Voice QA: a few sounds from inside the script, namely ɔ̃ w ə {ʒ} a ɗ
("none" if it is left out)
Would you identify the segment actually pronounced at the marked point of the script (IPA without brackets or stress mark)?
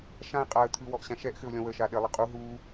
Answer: ʃ